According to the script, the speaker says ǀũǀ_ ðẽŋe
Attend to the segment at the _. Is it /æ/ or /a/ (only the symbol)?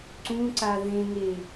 a